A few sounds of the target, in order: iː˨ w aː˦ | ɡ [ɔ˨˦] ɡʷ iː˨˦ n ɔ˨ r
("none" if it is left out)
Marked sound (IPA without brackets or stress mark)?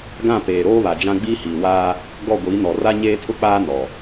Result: ɔ˦˨